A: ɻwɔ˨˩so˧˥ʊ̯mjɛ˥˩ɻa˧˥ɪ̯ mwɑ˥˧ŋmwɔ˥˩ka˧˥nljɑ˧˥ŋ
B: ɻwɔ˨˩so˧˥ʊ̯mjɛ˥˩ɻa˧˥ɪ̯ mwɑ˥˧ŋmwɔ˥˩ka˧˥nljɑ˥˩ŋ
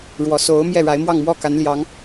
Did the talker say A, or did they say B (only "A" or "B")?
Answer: A